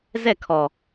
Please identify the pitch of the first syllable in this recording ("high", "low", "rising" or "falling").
falling